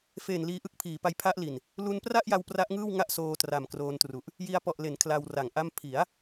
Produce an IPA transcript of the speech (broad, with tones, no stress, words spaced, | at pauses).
fe˨˩n liː˧ʔɯ˥˩k̚ pʰiː˩˦pa˦˥j pʰa˦˥ʔli˨˩n | lu˧npra˥˩ʔja˧w pra˦˥ʔŋɯː˥˩wŋa˥˩ʔ soː˧tra˨˩mkroː˧ntru˨˩ʔ | ji˧a̯pɔ˨˩ʔle˩˦n kʰla˧wra˩˦ŋʔa˥˩m pʰi˩˦a̯